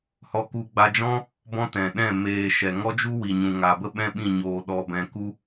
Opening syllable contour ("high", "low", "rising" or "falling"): high